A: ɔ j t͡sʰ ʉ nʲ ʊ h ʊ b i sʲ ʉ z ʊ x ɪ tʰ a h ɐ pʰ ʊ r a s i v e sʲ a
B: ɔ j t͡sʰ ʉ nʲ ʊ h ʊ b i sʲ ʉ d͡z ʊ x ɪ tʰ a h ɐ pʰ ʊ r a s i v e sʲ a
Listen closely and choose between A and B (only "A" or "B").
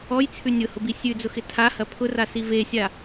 B